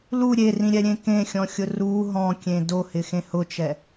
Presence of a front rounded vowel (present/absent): absent